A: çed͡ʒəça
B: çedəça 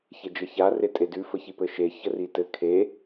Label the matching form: A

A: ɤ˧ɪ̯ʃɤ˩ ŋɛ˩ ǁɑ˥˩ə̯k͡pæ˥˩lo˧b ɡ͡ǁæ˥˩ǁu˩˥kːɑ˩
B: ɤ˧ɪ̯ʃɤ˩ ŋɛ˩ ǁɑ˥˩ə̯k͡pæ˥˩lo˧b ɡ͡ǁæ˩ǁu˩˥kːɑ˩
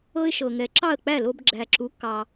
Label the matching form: B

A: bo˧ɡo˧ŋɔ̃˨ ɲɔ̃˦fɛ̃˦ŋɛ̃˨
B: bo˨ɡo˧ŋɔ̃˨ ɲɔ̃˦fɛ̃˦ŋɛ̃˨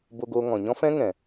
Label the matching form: A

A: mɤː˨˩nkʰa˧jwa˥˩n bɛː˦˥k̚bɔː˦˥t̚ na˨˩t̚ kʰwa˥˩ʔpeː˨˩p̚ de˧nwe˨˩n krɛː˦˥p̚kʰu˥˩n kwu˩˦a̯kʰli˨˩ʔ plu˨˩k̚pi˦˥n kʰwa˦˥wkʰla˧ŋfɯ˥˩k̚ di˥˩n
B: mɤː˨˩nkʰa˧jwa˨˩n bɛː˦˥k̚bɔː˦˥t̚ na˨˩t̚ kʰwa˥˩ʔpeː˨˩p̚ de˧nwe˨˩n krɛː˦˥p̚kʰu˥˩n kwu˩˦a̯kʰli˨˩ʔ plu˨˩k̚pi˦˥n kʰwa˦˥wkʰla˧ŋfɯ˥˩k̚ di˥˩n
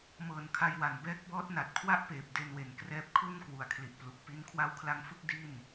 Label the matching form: B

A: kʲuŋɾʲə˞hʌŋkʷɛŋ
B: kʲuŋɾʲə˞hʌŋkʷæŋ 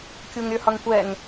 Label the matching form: A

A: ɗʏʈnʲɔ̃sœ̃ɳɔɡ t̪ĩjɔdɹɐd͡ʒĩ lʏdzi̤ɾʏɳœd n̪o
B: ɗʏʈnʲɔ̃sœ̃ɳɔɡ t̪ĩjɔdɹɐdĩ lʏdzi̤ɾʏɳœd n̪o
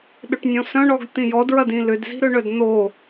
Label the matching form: B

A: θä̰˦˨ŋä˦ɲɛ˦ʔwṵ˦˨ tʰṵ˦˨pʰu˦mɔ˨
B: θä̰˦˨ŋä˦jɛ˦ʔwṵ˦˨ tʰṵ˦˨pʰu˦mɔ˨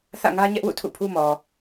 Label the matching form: A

